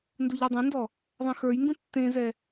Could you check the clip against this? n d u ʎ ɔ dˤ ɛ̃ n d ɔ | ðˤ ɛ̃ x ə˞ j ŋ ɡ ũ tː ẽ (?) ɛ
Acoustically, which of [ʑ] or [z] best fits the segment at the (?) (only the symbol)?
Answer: z